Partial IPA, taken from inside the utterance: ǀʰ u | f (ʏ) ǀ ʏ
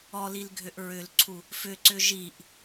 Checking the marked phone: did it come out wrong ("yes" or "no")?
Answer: no